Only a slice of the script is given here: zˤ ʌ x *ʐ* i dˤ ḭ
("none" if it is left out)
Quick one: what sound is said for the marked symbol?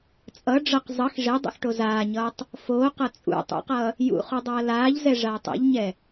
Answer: ʐ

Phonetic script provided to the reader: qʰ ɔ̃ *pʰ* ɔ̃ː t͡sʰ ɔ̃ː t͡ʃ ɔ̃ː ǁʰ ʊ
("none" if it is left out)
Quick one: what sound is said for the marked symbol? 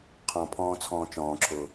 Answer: pʰ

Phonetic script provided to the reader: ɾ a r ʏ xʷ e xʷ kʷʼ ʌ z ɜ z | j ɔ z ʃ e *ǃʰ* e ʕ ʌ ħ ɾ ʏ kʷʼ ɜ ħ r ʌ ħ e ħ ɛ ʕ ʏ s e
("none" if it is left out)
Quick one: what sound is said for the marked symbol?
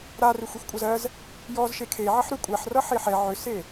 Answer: kʰ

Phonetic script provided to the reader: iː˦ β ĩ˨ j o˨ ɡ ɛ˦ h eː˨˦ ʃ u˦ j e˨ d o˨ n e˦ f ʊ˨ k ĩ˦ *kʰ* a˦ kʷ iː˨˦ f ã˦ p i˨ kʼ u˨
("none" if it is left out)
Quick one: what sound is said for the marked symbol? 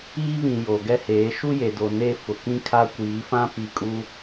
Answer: kʰ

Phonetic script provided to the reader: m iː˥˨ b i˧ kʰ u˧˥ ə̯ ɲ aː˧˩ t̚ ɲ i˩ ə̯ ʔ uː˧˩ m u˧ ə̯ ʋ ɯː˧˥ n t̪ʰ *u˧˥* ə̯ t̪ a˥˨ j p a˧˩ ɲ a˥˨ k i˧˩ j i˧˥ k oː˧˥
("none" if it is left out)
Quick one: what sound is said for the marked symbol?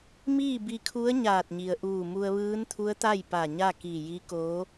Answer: u˧˥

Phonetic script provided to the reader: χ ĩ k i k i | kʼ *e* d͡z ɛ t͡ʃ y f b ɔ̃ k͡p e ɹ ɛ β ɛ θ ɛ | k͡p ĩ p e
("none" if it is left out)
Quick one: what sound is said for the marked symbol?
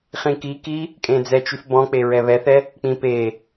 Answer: ẽ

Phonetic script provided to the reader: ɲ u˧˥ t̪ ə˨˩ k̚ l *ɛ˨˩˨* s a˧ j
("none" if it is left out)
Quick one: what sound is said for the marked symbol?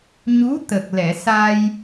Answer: ɛ˨˩˨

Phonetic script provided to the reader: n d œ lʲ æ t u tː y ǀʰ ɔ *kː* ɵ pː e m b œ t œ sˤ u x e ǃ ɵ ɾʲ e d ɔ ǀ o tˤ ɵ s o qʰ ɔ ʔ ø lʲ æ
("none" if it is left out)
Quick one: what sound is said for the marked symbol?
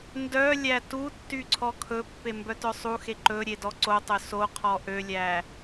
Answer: kʰ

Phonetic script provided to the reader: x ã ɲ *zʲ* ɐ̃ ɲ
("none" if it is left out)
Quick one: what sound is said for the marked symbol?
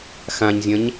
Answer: zʲ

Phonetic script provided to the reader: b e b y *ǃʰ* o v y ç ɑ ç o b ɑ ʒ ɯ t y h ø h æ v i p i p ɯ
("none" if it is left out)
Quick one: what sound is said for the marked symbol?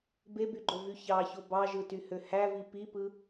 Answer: ɡ͡ǃ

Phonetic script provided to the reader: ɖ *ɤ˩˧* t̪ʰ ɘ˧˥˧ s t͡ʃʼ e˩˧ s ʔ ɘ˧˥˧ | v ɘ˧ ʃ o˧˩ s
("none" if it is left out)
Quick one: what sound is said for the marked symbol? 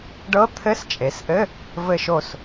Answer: ɤ˧˥˧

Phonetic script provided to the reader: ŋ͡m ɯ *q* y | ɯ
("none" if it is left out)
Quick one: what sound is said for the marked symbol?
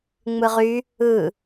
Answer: ʁ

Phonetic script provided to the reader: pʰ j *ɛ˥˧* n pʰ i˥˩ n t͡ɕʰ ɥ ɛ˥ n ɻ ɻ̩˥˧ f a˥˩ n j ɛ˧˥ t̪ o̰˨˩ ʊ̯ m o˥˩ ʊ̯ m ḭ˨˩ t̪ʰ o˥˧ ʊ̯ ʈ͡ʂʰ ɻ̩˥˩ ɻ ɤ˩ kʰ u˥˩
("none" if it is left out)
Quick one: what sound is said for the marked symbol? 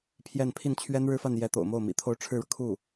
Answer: ɛ˥˧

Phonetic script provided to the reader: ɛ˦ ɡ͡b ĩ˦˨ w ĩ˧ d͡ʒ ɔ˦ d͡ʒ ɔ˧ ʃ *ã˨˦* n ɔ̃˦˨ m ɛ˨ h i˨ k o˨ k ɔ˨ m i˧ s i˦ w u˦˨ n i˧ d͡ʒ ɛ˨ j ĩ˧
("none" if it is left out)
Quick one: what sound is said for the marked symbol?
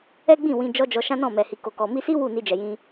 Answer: ã˦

